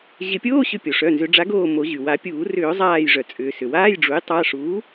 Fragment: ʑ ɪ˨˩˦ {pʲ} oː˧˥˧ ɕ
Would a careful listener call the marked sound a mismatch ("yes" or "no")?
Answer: no